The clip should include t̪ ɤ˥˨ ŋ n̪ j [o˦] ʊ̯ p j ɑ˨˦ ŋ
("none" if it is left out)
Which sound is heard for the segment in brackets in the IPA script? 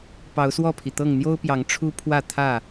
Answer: o˦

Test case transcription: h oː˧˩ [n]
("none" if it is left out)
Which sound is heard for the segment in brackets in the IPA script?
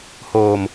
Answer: m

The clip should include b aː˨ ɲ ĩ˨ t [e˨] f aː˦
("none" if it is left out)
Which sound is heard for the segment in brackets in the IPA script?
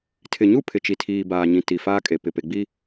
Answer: i˨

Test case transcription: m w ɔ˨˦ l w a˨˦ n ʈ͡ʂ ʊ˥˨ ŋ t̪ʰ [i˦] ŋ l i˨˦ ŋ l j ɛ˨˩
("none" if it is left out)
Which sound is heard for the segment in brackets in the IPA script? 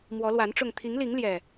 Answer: i˨˦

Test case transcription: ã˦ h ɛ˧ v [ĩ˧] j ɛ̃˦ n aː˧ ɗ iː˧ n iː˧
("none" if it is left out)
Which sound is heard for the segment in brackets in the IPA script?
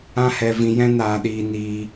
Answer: ĩ˧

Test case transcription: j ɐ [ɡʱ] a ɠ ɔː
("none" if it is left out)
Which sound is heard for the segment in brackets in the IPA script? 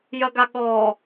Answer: ɡ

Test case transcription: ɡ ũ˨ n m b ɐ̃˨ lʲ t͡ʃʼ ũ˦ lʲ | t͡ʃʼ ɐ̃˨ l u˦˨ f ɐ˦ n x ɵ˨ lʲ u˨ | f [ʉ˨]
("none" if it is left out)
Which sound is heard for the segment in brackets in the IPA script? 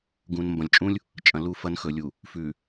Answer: ʉ˨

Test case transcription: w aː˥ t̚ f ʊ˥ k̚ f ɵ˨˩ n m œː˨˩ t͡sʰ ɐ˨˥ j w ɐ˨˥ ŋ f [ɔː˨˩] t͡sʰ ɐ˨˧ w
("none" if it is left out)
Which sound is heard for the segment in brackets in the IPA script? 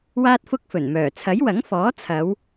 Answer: ɔː˨˥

